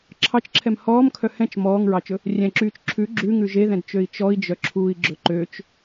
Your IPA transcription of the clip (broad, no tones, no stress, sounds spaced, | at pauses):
ǁʰ ɑ t͡ʃ ǁʰ ɛ m h ɔː m kʰ œ h ɛ̃ t͡ʃ m ɔː ŋ ɹ ɑ t͡ʃ ɵ | rʲ ɛ̃ ǁ yː t͡ʃ ǁʰ ʉ ɡ͡ǁ ʉ ŋ ʉ ʒ e ð ɛ̃ d t͡ʃ ø i̯ t͡ʃ ɔ i̯ d͡ʒ œ ǁʰ uː i̯ ɡ͡ǁ ɵ ǃ ø t͡ʃ